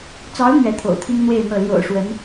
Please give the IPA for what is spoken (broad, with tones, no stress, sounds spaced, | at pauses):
t͡s ɑ˧˥ ʊ̯ n̪ ɥ ɛ˧˥ t̪ʰ o̰˨˩ ʊ̯ t̪ʰ i˥ ŋ n̪ w e˥˧ ɪ̯ n̪ ɤ˥˩ l j o̰˨˩ ʊ̯ ʂ w ə˧˥ n